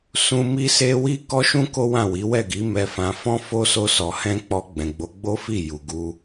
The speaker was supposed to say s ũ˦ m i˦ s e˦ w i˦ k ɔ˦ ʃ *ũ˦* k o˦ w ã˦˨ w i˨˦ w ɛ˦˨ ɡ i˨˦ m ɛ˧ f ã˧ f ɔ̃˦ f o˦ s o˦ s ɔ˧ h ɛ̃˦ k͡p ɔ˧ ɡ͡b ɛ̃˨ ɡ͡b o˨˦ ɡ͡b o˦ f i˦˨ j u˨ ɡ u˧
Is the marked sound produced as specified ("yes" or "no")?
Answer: yes